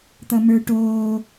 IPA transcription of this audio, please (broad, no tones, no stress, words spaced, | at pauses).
t̪ʌmə˞ʈoː